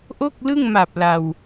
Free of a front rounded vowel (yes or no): yes